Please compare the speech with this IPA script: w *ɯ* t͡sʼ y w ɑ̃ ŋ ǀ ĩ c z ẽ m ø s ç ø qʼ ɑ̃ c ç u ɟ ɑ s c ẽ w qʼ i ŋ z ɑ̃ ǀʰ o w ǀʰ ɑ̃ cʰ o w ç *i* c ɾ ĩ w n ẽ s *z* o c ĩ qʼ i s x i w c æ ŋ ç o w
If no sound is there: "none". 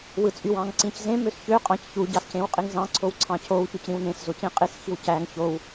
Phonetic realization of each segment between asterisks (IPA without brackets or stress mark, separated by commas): ɯ, y, z